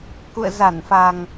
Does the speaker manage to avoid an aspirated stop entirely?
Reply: yes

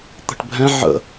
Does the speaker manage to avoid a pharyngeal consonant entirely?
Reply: no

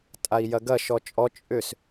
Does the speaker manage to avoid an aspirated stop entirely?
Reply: yes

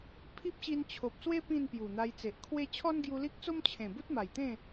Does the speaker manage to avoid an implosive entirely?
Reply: yes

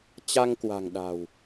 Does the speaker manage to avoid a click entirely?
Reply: yes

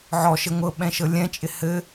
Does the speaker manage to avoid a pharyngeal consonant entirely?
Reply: no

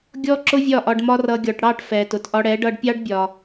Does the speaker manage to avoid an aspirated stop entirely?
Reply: yes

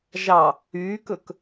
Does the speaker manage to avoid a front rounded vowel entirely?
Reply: no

